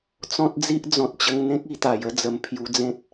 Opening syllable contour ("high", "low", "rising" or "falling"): high